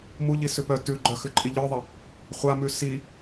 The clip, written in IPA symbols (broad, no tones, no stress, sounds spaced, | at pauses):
m u ʎ i s ʉ p œ t ʉ ɡ͡ǃ œ x ʉ ǃʼ i ʎ œ ðˤ ə | χʷ a m ʉ s i